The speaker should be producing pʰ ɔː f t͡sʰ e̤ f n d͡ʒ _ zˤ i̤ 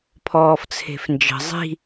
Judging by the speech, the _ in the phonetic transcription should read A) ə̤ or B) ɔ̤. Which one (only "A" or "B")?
A